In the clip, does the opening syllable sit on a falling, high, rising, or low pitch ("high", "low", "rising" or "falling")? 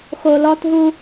low